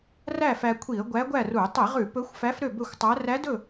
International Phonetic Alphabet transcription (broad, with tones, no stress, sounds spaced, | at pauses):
r æ˥˨ f æ˧ kʷʰ i˧˩˧ ə̯ ɡʷ æ˧˥ ɡʷ æ˥˨ r u˧˩˧ tˤ i˧˩˧ ʁ ʉ˧˩˧ p ɵ˧˥ xʷ f æ˧˥ f ɾ ø˥˨ b ɵ˥˨ xʷ tˤ æ˧˥ r æ˧˥ d ɵ˥˨